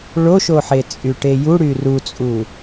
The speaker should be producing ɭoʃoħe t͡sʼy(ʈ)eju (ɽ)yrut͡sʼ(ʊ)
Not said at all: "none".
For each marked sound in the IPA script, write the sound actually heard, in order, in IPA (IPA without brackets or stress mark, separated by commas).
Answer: ʈ, ɽ, u